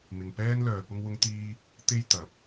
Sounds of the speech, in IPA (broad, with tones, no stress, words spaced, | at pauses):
mɪ˨ŋpɛː˥nlœː˨ pʊ˥ŋwʊ˥ŋt̪iː˥ | t̪e˥j t̪ɐ˨˥p̚